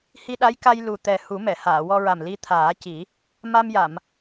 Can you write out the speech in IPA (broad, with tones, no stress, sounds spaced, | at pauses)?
h i˧ ɗ a˧˥ j k a˧ j l u˨˩ t̪ ɛ˨˩ h u˨˩˦ m ɛ˨˩˨ h aː˨˩˨ w ɔ˧ ɹ a˨˩ m l i˧ t̪ʰ aː˨˩˦ c i˨˩˦ | m a˧ m j a˨˩˨ m